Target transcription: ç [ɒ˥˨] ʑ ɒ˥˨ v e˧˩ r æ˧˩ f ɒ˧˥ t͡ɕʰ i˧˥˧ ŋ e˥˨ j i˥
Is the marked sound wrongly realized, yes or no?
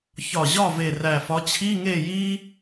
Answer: yes